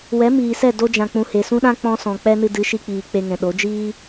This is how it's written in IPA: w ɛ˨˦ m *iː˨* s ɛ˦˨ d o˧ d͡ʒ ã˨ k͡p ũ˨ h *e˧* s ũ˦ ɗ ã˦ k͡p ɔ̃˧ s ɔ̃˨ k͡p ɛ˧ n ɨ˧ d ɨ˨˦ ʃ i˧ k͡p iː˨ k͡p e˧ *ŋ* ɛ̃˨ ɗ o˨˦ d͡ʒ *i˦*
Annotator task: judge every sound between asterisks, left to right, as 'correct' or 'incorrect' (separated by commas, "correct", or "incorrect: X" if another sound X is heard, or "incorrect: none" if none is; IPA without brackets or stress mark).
correct, incorrect: e˨, correct, incorrect: iː˦